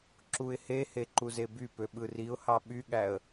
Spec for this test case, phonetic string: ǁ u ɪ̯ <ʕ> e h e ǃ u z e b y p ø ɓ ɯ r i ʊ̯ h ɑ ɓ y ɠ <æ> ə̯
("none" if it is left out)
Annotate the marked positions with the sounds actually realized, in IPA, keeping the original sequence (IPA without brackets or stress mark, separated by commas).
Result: h, æ